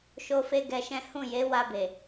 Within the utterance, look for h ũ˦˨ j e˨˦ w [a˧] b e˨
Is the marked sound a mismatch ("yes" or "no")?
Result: no